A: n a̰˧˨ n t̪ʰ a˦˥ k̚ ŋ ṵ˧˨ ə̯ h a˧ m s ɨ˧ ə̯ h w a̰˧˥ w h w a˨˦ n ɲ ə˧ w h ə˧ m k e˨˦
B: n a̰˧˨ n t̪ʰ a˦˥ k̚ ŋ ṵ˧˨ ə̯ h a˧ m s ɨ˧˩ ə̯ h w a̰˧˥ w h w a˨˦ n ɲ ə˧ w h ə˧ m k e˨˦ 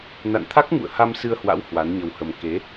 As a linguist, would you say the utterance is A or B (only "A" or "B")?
A